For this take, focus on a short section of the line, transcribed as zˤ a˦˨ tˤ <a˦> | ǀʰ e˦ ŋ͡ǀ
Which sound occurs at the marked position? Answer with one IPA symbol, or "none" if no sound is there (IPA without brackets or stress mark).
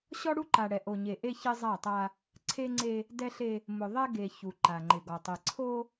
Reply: a˦